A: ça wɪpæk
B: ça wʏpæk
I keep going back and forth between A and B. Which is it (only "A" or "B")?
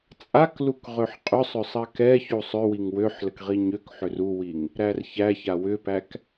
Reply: B